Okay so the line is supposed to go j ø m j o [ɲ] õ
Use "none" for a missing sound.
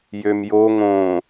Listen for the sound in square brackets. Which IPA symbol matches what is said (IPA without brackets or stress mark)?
ŋ